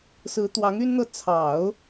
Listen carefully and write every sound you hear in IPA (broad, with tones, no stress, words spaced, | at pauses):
sɹ̩˧˥t̪wɑ˧˥ŋ y˥nn̪ɤ˥˩ t͡sʰɑ˨˩˦ʊ̯